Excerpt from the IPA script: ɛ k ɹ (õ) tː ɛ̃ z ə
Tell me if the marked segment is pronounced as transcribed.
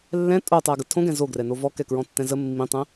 no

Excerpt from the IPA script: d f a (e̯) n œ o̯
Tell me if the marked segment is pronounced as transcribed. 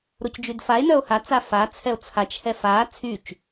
yes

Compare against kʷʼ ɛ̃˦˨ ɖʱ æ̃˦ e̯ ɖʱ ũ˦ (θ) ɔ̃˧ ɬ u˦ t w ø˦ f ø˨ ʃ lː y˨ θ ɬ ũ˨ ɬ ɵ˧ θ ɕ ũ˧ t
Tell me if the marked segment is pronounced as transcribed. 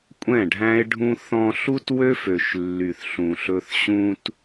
yes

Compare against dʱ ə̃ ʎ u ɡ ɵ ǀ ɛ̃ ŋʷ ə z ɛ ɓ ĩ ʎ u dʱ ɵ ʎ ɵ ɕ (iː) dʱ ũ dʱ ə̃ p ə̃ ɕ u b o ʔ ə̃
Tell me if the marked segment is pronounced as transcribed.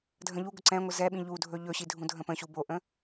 no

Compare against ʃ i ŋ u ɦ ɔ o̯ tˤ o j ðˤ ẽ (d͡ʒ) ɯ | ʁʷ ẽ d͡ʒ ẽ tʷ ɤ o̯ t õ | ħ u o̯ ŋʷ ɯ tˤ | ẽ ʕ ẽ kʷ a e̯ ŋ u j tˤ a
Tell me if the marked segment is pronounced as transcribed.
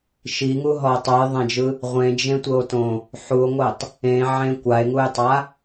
yes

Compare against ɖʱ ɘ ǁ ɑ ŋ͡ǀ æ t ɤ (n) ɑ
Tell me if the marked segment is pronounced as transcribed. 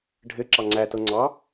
no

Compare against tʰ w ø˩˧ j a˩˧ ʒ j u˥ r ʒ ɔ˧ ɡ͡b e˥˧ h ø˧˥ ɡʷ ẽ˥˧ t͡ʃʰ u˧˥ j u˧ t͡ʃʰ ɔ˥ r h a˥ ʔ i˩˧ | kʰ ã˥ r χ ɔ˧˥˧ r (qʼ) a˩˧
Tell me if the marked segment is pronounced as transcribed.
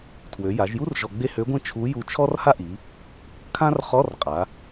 yes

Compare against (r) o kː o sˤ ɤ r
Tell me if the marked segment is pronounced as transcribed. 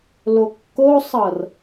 no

